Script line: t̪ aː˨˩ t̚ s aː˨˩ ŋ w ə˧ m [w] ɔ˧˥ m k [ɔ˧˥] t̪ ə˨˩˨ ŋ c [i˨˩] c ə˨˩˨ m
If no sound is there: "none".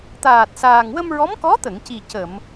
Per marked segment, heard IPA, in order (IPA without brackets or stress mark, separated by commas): ɹ, ɔ˧˥, i˨˩